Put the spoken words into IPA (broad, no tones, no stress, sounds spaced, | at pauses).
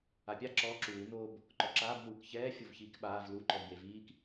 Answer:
a pʲ a ǁ ɔ ǁ uː n o b | ǃ ɔ ǁ aː b n uː k ç ɛː fʲ o v ç iː k ɓ aː v l u ǃ ɔ v j e v iː k